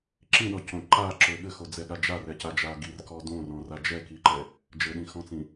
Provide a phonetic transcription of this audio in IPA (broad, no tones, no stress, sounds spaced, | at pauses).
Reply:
ǁ ĩ ɗ ɔ c õ ǃ a ǁ ø ɠ ɘ x o d͡z ɛ ɠ a d͡ʒ a r ɛ c a d͡ʒ a ɡ i r k ɔ d õ r ɔ̃ r a d͡ʒ ɛ k i ǃ ɛ | d͡ʒ ɘ ɗ ĩ x ɔ̃ t͡s ĩ